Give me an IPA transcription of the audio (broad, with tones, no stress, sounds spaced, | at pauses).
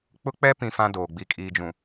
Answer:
k͡p ʊ˦ k͡p ɛ˦ p ĩ˦ f ã˦ d oː˨ ɡ͡b i˨ kʼ iː˨ d͡ʒ ũ˨